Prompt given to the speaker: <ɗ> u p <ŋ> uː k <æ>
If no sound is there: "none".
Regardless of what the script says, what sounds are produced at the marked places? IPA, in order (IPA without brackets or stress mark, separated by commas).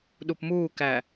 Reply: ɗ, m, æ